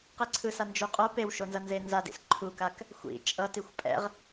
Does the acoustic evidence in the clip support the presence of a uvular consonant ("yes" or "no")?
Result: yes